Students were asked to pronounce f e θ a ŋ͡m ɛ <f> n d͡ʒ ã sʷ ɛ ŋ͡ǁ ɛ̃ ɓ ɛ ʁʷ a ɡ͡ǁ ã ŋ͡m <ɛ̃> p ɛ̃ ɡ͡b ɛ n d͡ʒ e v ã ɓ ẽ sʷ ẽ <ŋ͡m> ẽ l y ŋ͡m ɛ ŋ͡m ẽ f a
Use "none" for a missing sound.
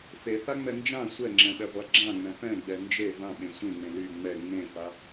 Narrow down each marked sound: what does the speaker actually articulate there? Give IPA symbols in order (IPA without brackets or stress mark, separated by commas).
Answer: none, ɛ̃, ŋ͡m